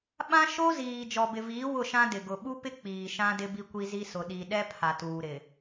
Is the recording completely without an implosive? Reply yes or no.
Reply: no